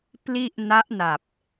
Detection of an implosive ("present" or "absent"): absent